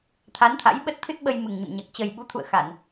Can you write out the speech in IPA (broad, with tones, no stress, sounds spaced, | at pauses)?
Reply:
t̪ʰ a˨˦ n t̪ʰ a̰˧˥ j ɓ ə˦˥ t̚ t̪ʰ ɨ˦˥ t̚ ɓ ə˧ j m ɨ˨˩ ŋ ɲ ə̰˧˨ m ɲ a˨˩ k̚ t͡ɕ ə˨˩ j ɓ u˨˦ t̪ʰ ṵ˧˨ ə̯ x a˧˩˨ n